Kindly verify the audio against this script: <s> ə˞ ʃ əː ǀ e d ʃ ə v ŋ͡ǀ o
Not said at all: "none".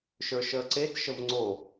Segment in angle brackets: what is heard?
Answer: ʃ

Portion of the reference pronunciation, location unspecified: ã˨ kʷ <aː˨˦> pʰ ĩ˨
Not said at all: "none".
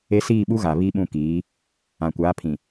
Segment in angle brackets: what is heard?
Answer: aː˨˦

